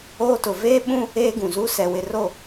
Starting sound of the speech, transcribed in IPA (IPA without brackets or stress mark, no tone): oː